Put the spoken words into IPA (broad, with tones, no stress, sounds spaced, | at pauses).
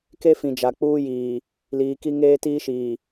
k e˦ f ĩ˨ d͡ʒ a˨ k͡p uː˦ j iː˨ | l iː˨ k i˦ ŋ eː˦ t iː˦ ʃ iː˨